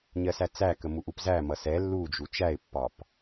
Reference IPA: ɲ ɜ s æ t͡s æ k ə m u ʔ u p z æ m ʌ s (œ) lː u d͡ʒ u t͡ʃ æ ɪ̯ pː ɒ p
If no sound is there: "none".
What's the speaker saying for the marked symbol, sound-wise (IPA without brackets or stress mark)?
ɛ